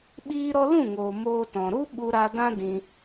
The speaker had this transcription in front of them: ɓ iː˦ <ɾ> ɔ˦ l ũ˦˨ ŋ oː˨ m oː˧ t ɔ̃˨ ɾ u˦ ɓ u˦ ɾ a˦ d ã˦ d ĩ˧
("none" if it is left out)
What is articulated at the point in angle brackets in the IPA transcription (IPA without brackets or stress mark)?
ɾ